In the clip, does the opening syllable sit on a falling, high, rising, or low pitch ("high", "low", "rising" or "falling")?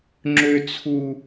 high